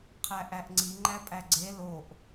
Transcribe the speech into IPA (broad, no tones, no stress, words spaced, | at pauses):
qʰæʔæʔŋ͡ǀi ŋ͡ǃæpʼæɡ͡ǀe loʔ